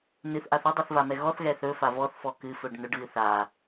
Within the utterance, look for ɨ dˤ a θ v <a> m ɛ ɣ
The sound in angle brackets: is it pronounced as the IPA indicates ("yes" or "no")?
yes